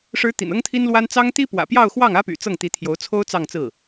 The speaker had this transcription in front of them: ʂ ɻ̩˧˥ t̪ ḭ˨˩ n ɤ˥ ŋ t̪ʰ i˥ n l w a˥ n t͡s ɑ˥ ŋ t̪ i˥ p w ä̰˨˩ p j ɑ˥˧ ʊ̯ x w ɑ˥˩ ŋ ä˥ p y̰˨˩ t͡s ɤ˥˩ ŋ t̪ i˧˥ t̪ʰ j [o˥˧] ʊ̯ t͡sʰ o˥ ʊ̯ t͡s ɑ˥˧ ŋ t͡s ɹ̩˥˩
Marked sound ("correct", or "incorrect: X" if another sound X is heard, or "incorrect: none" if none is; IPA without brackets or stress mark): incorrect: o˧˥